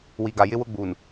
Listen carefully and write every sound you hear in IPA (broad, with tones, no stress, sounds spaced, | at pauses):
w i˨ ɡ a˨ j ɪ˦ w ʊ˦ ɡ͡b uː˨ n